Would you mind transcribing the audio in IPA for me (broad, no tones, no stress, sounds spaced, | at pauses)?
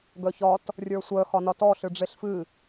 ɡ œ ç ɒ t | rʲ ə˞ sʷ œ x ɒ n ɒ t ɔ ɬ ɨ ɖ͡ʐ e ɬ f ɨ